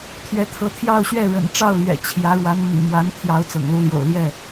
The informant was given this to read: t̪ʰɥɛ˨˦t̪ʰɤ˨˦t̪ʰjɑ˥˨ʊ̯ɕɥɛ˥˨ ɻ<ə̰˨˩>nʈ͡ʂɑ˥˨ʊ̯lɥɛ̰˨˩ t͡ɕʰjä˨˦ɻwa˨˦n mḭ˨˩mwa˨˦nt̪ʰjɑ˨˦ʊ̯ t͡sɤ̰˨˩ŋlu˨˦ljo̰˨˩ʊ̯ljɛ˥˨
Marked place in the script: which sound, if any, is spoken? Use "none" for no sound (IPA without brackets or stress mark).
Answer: ə̰˨˩